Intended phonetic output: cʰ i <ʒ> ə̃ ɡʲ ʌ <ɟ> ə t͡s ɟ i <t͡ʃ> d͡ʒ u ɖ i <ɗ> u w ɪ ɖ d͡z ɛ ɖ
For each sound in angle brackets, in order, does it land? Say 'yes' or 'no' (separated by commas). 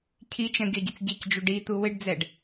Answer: no, yes, no, no